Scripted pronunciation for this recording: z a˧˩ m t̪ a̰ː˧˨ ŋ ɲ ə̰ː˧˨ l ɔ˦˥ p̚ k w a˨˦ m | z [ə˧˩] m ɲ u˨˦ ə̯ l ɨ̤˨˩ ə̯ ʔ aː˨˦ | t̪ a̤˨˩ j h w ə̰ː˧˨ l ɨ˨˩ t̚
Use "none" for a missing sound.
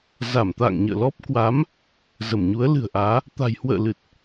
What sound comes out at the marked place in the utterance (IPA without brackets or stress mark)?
ə˧˩